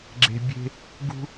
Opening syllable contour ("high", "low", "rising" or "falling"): low